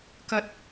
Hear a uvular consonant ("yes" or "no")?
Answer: no